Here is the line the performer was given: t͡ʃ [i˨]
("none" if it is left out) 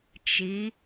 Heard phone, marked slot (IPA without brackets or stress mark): i˨˦